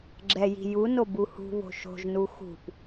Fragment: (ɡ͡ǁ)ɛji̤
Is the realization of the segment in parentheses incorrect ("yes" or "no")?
no